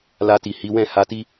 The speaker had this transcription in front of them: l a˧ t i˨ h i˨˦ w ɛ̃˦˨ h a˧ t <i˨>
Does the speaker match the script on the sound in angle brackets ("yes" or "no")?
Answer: no